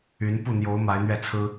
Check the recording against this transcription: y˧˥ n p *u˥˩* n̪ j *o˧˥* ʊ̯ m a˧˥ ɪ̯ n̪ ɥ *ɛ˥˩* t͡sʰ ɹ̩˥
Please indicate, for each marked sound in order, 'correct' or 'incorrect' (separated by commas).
correct, correct, correct